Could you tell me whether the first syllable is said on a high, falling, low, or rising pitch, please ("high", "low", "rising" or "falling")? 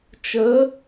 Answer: rising